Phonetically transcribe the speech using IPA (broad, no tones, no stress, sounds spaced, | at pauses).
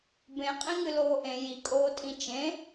b ẽ qʼ ĩ ŋ ɨ l oː ʔ ẽ j i kʼ oː tʼ ĩ t͡ʃ ẽ